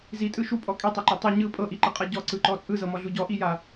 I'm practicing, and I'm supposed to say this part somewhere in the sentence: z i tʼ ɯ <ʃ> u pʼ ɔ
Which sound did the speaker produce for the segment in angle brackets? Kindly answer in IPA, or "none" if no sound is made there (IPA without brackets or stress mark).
ʃ